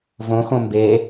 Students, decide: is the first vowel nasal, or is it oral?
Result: nasal